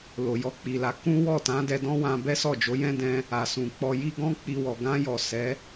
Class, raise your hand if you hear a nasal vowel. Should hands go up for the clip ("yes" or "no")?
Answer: yes